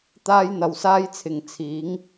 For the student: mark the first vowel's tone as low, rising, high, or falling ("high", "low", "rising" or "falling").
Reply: high